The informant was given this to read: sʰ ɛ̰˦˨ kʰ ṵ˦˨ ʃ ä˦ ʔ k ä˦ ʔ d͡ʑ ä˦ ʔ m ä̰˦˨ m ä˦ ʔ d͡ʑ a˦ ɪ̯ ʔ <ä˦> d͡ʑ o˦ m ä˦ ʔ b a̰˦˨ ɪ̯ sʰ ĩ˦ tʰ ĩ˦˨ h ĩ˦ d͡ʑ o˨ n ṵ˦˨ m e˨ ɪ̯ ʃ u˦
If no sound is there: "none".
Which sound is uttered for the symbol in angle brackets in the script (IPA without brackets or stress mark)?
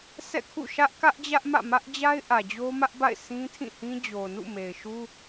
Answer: ä˨